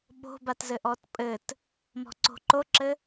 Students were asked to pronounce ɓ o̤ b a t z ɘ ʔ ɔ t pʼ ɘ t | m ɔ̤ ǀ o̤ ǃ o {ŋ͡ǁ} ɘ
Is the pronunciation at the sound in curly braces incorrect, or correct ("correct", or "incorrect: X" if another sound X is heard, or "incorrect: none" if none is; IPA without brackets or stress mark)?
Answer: incorrect: ǁ